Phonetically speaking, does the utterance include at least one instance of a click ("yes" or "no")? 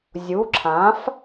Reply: yes